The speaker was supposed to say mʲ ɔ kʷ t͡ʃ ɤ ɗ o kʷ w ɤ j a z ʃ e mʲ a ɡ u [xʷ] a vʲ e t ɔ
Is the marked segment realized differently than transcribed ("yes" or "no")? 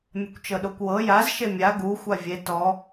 no